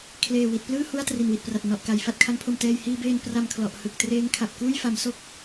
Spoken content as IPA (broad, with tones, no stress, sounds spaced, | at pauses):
kʰ l eː˨˩ w i˨˩ t̚ p l ɯː˥˩ h u˧ a̯ t r i˨˩ n w i˨˩ t̚ p r a˨˩ t̚ n ɔ˨˩ ʔ k a˨˩ j f a˥˩ t̚ kʰ a˦˥ ŋ pʰ o˧ m t ɛː˧ j h iː˧ b eː˧ n p r a˧ m kʰ l ɔ˨˩ ʔ h ɯ˨˩ k̚ t r eː˦˥ ŋ kʰ a˨˩ p̚ k uː˥˩ j f a˩˦ m s o˥˩ k̚